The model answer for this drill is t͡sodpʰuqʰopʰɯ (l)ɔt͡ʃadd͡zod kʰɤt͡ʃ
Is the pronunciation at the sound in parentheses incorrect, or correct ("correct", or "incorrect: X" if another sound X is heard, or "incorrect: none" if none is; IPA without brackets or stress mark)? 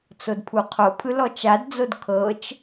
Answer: correct